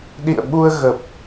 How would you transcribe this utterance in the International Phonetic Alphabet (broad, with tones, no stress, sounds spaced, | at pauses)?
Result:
ɗ ḭ˧˨ ə̯ ɓ u˧ ə̯ ɣ ə˨˩ p̚